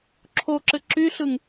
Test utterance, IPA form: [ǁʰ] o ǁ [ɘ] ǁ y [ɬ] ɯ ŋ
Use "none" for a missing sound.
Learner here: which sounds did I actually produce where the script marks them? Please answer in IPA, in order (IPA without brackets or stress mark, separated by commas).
ǁʰ, ɘ, ɬ